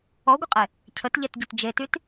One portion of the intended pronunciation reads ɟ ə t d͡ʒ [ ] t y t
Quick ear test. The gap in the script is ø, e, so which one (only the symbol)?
e